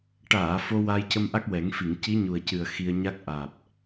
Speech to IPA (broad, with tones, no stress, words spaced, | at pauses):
ʈaː˨˩˨ fo˧ waː˧jcə˧mʔa˦˥k̚wɛ˨˩˦ŋ fi˨˩˨ŋci˧˥ɲu˨˩ə̯cɨ˨˩ə̯ xi˧ə̯ɲa˦˥k̚ ʔaː˨˩p̚